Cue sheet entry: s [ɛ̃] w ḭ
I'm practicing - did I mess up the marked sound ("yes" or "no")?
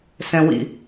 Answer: no